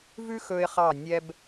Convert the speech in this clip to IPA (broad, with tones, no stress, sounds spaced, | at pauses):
v ʉ˥ x ɵ˧ ɪ̯ χ ɑ˧˩ nʲ ɛ˧ b